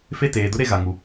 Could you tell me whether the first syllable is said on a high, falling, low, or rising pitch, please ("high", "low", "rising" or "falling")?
falling